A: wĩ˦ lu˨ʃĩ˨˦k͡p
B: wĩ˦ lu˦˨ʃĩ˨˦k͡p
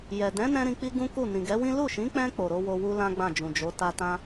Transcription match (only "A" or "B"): B